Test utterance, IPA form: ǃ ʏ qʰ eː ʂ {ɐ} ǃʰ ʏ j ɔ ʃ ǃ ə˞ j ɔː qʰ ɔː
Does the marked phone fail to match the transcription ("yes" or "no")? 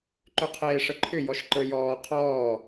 yes